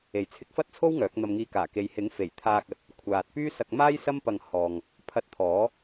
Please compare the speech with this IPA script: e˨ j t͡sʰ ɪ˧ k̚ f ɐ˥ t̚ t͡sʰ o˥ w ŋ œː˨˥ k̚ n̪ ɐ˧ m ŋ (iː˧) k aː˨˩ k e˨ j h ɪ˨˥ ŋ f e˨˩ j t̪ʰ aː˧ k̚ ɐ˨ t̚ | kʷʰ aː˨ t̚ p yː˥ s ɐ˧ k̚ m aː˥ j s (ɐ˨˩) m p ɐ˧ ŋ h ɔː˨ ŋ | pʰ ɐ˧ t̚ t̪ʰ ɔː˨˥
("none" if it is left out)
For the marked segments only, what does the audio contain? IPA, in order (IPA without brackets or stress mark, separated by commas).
iː˧, ɐ˥